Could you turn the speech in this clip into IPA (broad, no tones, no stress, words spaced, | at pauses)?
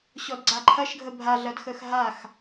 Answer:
ɕɔdɡ͡ǀaǃʰɐʃɡʱə bʱaɮɐdxəx ɦax